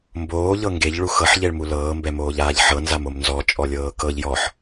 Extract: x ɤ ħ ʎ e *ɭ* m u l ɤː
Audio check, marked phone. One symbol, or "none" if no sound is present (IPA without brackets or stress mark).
ɭ